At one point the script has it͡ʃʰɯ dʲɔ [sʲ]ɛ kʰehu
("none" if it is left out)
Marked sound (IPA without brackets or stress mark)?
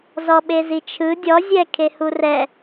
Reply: zʲ